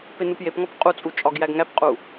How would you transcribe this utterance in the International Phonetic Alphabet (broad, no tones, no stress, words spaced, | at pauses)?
penupjepŋɒp qʼut͡sʼu t͡ʃʼɒɡjæɡŋæpqʼu